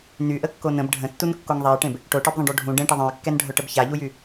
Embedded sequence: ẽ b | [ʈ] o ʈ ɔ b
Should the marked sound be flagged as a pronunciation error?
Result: no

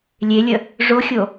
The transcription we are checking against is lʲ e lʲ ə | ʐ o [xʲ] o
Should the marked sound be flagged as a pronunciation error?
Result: no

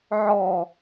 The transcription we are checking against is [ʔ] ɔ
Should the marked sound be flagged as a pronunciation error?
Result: yes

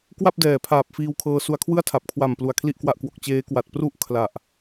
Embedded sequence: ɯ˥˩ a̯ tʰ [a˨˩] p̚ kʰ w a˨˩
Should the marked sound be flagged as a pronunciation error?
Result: no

